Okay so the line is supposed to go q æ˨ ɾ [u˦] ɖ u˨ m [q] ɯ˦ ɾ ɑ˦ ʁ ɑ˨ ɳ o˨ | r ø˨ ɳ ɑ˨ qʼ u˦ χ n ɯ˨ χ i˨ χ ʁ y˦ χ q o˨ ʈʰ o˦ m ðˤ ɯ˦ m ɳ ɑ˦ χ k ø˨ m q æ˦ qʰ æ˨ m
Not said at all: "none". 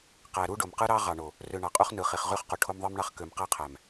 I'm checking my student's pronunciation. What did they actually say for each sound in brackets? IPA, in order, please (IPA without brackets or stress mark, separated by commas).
u˦, q